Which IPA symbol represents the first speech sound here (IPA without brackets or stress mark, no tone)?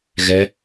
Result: ɣ